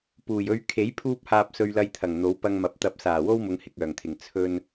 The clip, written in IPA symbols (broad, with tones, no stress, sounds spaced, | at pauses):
p uː˨˩ j ɵ˧ ɥ kʰ e˨˥ j pʰ uː˧ p̚ h aː˨ p̚ s ɵ˧ ɥ l ɐ˧ j t̪ʰ ɐ˨˩ ŋ n̪ o˨˥ w p ɐ˧ ŋ m ɐ˨˥ p̚ t̪ ɐ˧ p̚ s aː˨˩ w o˥ w m ʊ˨˧ ŋ h ɪ˨ k̚ œː˨˩ ŋ t̪ʰ ɪ˨˩ ŋ t͡sʰ ɵ˧ n